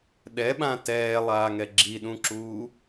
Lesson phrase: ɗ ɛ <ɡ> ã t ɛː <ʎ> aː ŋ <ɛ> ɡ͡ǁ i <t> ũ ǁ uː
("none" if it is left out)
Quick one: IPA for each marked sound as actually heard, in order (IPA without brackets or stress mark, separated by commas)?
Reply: ɓ, lˠ, ɛ, ɗ